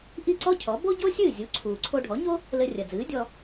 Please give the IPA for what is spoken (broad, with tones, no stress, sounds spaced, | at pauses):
ʔ i˥˩ ǀ ɔ˥ cʰ ɔ˩˥ b o˥ ɟ o˥ sʲ ɨː˥˩ zʲ u˩˥ ǀʰ uː˩ ǀʰ o˧ ɖʱ ɔ˩˥ ɲ o˥ | l ɘ˧ rʲ ɐ˩ d͡z ɨː˩˥ dʲ ɔ˧